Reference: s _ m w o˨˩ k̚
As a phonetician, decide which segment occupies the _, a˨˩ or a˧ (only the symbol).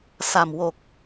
a˨˩